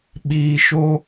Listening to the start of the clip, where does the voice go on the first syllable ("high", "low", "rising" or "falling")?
low